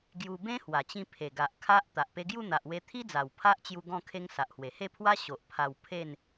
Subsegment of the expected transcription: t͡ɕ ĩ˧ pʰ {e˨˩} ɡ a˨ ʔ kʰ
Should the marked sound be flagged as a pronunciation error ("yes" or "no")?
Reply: no